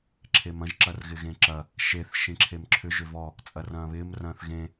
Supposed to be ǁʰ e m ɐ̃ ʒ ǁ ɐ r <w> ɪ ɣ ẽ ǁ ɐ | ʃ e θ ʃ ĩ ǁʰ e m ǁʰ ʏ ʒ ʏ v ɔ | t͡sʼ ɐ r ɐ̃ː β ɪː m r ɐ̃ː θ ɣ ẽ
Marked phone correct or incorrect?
incorrect